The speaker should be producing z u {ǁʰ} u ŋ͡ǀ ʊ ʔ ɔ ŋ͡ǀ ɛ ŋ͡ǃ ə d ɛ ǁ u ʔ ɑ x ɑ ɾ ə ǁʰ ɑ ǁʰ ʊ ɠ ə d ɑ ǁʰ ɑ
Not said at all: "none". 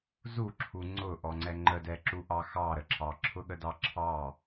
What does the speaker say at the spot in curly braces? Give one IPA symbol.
ǁʰ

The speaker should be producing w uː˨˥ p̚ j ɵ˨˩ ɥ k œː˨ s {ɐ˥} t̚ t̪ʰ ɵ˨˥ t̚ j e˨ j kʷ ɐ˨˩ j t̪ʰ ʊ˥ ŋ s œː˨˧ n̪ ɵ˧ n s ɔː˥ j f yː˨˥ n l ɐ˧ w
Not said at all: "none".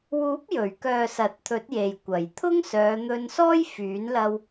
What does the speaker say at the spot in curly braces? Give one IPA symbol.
ɐ˨˥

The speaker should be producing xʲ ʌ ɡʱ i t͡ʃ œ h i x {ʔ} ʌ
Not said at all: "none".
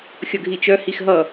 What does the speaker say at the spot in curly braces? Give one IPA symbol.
ɦ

